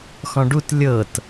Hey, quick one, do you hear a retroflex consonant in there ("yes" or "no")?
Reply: yes